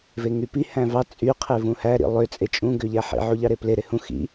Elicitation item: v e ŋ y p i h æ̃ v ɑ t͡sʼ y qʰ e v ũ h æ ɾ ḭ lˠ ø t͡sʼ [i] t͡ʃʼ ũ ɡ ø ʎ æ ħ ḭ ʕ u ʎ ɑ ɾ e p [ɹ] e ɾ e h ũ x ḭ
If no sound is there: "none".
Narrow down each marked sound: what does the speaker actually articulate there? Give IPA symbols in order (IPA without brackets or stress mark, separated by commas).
e, l